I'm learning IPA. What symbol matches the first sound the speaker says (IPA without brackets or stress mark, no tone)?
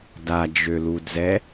d